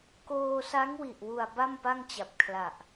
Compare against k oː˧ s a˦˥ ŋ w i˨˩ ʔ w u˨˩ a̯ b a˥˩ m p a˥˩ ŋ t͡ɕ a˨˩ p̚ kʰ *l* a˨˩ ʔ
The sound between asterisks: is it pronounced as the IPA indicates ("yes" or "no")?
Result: yes